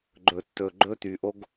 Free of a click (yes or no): no